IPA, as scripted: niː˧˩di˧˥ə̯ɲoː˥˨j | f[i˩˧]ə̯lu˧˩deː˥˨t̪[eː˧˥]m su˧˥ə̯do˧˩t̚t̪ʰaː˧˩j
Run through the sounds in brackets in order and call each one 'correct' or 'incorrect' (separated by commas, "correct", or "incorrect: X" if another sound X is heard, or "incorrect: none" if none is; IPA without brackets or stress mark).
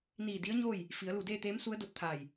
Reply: correct, correct